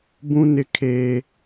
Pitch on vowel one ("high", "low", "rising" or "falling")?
high